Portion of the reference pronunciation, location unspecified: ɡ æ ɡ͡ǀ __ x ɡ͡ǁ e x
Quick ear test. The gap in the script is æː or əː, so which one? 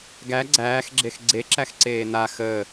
æː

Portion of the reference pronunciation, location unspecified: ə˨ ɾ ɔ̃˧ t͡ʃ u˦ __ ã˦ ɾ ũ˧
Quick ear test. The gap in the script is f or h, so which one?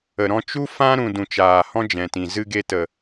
f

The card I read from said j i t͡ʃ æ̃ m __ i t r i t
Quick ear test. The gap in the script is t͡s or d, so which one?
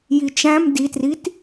d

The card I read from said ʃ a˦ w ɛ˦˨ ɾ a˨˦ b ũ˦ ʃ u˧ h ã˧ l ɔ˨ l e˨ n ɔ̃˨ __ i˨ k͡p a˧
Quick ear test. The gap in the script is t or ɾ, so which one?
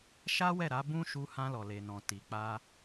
t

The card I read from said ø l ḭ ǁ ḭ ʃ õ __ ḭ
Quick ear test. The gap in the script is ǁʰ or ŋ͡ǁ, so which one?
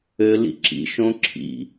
ǁʰ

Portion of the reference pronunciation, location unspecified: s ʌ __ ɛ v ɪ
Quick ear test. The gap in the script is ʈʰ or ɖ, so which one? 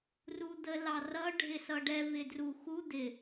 ɖ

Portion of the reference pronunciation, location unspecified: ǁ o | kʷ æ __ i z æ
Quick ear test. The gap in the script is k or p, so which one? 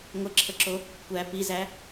p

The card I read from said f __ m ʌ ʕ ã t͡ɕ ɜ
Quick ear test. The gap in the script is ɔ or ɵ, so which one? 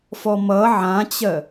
ɔ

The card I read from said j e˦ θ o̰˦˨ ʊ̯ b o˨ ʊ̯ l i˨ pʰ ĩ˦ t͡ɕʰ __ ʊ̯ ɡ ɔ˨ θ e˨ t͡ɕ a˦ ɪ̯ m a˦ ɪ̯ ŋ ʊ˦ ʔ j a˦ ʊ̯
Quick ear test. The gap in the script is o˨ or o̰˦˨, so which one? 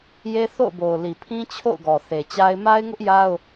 o̰˦˨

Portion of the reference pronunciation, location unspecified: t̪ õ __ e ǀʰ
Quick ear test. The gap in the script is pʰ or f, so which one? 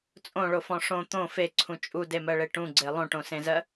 f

